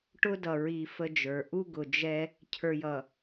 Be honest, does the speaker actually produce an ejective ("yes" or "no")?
no